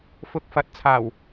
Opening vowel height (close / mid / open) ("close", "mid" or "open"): close